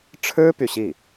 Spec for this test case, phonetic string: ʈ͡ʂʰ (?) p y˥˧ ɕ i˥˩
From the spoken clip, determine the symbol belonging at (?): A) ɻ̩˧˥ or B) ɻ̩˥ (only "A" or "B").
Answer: B